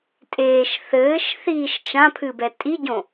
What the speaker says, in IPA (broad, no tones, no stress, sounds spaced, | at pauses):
tʼ eː ʃ θ ɘː ʃ θ iː ʃ t͡ʃ ã pʰ ɨ b ɛ tʼ i ɟ õ